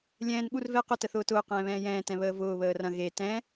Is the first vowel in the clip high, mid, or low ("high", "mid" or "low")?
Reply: mid